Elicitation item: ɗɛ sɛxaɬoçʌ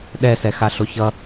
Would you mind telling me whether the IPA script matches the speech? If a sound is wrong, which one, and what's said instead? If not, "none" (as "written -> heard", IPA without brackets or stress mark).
none